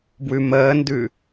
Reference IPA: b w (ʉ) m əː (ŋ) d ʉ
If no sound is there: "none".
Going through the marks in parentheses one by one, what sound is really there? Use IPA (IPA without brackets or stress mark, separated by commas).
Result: ʉ, n